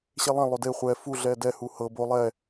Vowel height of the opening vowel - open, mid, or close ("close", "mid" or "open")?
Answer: mid